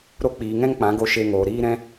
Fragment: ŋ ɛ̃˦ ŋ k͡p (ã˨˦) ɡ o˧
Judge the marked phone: correct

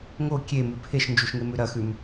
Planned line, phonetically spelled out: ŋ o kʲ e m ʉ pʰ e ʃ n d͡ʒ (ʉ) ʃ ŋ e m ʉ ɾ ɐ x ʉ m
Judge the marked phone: incorrect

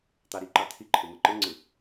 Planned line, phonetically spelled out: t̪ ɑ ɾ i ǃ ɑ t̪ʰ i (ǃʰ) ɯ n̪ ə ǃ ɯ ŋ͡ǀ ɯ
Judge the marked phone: correct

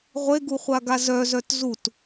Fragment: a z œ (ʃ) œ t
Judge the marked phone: incorrect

